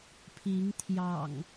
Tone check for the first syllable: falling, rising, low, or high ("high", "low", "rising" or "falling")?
rising